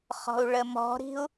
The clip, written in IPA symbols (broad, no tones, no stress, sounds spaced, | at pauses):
χ ɔ̤ u̯ ɭ ə m ɔ̤ ɾ i̤ u̯